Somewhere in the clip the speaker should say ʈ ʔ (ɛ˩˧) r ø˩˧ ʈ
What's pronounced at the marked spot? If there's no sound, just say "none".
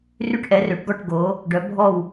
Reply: ɛ˩˧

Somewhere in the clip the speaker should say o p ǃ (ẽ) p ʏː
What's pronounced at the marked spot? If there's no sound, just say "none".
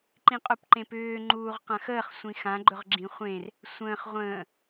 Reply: ẽ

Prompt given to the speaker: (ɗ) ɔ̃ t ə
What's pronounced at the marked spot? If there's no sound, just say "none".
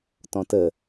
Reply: t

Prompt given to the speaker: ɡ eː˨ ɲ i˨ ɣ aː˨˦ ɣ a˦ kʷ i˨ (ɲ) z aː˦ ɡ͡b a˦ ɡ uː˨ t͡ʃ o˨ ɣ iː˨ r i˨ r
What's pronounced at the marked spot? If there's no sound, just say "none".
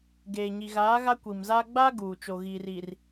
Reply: m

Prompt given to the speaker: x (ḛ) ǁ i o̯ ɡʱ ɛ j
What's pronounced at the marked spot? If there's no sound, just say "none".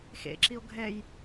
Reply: ḛ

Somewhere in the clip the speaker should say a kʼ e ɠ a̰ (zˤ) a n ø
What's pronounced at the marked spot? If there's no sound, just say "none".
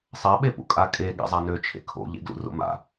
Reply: zˤ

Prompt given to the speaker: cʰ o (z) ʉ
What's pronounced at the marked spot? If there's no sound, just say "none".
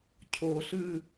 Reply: ɬ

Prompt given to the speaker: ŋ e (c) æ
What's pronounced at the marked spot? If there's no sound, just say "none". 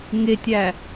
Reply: tʲ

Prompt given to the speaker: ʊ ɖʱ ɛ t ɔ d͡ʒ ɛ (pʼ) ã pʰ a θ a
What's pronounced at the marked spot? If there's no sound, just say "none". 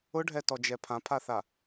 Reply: pʰ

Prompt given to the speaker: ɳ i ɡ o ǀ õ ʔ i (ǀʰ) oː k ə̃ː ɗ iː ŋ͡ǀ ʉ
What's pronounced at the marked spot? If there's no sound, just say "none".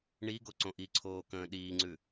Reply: ǀʰ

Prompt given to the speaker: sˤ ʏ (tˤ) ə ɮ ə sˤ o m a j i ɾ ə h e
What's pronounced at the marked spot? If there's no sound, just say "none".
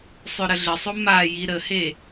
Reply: ɾ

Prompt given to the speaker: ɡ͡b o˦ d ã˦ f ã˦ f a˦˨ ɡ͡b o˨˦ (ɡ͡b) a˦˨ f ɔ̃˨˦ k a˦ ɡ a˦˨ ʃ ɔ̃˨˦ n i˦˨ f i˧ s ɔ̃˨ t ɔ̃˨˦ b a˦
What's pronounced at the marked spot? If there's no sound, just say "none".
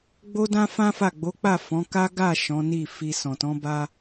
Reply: k͡p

